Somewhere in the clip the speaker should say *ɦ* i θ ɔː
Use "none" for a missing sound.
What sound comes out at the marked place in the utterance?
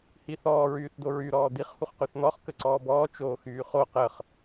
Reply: h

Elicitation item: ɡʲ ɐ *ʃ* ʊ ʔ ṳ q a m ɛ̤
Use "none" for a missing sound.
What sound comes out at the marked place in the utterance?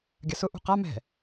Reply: s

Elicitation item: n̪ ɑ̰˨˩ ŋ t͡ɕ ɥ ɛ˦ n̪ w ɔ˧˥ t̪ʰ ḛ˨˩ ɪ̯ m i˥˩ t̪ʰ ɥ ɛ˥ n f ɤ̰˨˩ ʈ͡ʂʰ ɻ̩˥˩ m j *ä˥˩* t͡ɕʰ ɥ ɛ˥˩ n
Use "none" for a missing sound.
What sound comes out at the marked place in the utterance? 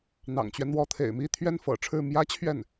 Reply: ä˥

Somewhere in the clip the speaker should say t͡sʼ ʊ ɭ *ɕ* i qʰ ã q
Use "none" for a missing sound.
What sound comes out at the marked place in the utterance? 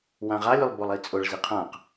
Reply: z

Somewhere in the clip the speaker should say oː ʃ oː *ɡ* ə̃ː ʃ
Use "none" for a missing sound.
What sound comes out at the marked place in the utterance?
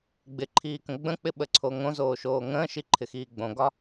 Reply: ŋ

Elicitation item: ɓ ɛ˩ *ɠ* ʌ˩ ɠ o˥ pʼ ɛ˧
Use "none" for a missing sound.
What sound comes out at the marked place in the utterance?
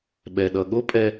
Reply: ɗ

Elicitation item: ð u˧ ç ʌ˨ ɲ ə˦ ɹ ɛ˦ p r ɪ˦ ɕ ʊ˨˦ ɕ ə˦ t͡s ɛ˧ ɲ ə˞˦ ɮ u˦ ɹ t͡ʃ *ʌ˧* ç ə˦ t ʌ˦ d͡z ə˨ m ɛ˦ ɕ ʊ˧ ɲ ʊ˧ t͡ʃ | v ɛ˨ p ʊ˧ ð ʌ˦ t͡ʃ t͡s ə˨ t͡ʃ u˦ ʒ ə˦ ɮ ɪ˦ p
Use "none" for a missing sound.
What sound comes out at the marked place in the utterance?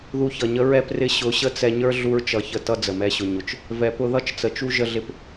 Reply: ʌ˧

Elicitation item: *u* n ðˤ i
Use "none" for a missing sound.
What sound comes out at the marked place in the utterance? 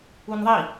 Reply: u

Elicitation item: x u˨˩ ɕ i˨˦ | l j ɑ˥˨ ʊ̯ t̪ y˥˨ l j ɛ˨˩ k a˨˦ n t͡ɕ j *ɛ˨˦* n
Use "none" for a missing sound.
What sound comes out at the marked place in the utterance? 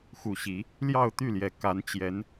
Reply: ɛ˨˦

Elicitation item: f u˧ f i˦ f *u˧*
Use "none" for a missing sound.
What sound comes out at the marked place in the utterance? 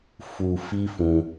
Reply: ũ˧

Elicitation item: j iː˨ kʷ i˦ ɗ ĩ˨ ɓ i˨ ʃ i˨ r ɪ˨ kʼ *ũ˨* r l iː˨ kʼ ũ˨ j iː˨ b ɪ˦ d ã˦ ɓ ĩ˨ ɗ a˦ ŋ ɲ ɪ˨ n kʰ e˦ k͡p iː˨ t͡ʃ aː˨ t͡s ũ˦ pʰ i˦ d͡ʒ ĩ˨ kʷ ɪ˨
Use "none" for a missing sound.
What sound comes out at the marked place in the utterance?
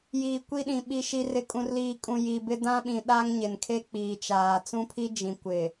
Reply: ũ˨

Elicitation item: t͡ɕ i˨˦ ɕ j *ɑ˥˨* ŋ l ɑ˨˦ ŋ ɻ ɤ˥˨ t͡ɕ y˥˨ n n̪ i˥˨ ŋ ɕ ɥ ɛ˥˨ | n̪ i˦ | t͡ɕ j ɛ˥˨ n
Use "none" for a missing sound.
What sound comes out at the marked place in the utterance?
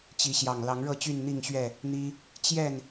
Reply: ɑ˨˩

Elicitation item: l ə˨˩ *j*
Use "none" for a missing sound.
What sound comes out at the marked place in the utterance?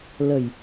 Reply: j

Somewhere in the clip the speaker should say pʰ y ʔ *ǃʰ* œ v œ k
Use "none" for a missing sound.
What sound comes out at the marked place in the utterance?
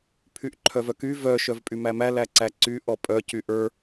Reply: ǃʰ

